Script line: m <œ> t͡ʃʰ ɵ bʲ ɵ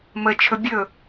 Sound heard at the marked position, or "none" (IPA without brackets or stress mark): ə